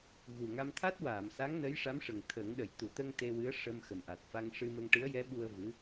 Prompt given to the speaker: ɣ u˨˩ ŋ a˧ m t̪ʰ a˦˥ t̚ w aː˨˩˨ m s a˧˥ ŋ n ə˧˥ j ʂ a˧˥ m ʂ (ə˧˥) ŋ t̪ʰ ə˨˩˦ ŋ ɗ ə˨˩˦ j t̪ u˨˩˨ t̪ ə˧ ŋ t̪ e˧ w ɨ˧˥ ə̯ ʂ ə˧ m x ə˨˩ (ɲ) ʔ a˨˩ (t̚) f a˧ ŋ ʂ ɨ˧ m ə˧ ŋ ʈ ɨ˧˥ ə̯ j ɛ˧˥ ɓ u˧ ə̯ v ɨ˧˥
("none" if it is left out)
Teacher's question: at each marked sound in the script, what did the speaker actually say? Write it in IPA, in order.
ə˨˩, m, t̚

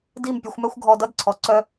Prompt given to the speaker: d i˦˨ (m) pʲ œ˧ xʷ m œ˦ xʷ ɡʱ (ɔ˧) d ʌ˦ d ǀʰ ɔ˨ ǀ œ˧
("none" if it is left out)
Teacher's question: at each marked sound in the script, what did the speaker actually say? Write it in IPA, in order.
m, ɔ˧

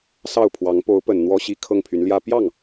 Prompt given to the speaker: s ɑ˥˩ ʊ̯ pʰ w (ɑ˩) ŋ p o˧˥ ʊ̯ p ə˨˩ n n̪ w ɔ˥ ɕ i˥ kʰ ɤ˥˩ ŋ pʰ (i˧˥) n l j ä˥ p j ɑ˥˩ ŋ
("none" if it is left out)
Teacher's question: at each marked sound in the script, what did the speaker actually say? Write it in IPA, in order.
ɑ˧˥, y˧˥

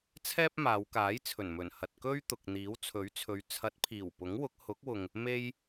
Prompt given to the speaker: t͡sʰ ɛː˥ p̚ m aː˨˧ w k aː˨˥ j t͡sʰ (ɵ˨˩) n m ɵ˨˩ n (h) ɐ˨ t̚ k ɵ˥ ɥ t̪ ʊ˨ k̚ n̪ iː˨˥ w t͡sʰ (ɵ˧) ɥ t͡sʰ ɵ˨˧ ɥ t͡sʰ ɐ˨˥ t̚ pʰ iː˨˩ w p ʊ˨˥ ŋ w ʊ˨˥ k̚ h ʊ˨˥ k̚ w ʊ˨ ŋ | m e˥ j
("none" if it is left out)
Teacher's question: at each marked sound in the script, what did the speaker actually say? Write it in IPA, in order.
ɵ˨˩, h, ɵ˨˥

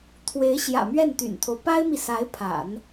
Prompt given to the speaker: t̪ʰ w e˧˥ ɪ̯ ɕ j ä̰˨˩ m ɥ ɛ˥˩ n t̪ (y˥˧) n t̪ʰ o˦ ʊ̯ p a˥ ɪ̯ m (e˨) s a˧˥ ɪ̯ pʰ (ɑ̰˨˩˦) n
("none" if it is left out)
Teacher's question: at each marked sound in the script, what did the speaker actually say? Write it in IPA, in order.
y̰˨˩, i˨, a̰˨˩˦

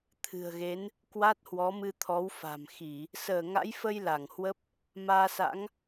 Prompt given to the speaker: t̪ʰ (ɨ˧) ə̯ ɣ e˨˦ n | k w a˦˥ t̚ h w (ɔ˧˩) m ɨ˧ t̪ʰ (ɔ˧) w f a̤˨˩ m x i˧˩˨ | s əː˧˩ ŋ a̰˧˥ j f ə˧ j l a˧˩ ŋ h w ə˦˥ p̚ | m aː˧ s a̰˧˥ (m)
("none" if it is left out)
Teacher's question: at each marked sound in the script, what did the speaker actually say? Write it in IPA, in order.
ɨ̤˨˩, ɔ˨˦, ɔ˨˦, ŋ

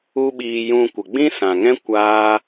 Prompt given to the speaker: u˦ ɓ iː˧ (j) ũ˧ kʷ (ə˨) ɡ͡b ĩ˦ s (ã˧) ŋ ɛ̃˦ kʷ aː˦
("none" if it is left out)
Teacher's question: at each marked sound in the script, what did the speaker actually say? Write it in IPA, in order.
j, ə˨, ã˨

